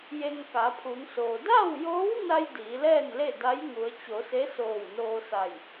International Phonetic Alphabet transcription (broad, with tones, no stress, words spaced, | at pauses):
je˧ŋka˩˧pʰu˩˧ŋsoː˩ da˥˨wjoː˧˥wna˧j diː˩˧lɛː˥˨nle˥˨ da˧˥jŋu˩˧ə̯t͡ɕo˩˧ se˧˥soː˧˩w noː˧sa˧˩j